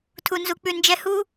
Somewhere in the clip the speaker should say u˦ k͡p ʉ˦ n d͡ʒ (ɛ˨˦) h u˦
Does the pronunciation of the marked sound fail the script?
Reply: yes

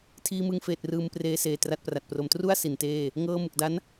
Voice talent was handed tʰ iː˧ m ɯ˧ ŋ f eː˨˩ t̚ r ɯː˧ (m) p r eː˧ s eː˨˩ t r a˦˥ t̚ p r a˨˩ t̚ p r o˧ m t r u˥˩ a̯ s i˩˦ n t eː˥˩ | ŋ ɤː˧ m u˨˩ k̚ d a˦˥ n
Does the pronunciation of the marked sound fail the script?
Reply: no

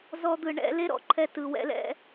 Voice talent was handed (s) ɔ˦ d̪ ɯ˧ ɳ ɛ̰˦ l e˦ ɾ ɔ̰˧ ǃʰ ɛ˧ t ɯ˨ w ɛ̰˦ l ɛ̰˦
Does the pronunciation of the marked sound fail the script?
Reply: yes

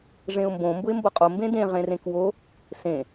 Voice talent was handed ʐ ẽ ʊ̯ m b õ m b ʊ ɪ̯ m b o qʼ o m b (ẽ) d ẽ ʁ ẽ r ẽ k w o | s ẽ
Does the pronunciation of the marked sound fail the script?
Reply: no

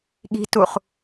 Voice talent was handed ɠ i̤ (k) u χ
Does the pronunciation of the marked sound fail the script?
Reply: yes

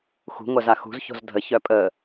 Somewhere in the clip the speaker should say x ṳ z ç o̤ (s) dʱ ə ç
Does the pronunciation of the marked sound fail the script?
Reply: yes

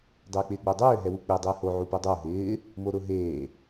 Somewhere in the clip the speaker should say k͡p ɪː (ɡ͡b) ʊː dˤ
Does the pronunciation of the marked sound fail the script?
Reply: no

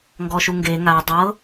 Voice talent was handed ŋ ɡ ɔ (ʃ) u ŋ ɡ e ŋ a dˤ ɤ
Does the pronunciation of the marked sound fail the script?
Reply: no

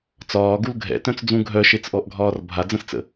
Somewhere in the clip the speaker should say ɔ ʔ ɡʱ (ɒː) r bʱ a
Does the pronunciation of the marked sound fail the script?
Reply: no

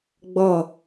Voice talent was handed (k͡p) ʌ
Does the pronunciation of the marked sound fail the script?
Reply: yes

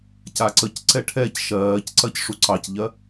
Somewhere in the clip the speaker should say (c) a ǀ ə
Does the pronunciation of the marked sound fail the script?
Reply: no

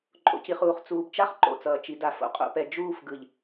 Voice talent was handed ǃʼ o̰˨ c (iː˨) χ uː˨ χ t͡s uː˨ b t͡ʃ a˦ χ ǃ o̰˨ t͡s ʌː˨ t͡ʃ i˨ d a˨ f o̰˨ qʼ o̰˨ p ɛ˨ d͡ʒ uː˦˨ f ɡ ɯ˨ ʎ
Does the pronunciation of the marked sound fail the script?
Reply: yes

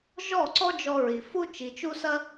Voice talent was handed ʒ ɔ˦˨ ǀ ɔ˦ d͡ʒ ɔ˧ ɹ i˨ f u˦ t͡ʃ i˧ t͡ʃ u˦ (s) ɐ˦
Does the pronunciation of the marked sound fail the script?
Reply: no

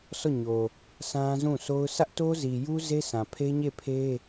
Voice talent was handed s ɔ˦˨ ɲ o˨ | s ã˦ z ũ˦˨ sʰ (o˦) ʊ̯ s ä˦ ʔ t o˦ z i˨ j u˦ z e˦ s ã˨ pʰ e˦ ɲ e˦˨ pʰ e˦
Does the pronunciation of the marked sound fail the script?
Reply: no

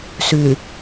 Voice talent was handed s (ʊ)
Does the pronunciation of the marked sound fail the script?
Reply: yes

